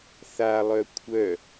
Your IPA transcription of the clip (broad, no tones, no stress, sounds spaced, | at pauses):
θ a lˠ œ kʷʰ œ